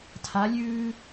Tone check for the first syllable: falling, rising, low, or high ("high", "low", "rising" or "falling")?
rising